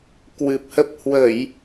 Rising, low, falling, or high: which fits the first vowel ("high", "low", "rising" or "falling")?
low